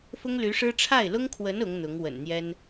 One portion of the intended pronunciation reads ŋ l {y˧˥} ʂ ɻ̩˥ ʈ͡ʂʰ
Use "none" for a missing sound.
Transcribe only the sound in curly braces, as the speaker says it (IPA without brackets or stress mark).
y˧˥